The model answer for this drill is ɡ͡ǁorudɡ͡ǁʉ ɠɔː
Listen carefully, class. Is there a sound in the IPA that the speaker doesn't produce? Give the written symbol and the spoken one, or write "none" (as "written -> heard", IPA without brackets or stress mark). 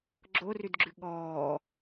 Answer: u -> ʉ